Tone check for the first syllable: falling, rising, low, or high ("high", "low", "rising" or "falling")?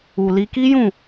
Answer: low